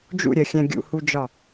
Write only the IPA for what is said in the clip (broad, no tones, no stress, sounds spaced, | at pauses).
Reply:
d͡ʒ ṵ ɾʲ ɜ xʲ æ̃ ɡʲ ṵ h u d͡ʒ ɒ